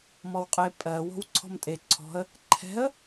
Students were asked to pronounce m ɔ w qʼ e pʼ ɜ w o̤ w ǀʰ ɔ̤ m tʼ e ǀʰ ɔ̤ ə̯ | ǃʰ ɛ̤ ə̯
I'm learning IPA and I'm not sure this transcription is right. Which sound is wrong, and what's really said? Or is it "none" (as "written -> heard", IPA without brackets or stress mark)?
none